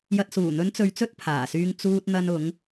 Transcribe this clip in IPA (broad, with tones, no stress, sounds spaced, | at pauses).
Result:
j ɐ˨ t̚ s uː˨˩ n̪ ɵ˨˧ n t͡s ɵ˧ ɥ t͡s ɵ˥ t̚ pʰ aː˨˩ s yː˧ ŋ t͡s uː˧ t̚ n̪ ɐ˧ n ʊ˨˧ ŋ